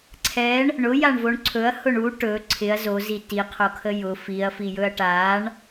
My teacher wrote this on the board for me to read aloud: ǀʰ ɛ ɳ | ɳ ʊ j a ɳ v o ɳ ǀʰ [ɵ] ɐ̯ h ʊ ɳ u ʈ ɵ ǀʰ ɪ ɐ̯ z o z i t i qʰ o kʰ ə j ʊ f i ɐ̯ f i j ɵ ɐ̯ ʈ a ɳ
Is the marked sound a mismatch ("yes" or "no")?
no